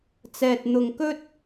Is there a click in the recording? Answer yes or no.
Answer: no